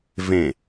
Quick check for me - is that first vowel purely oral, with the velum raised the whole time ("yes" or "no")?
no